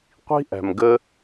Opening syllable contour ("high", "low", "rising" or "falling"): high